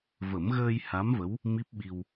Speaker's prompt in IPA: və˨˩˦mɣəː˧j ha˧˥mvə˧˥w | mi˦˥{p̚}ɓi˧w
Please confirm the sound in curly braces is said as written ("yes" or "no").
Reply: yes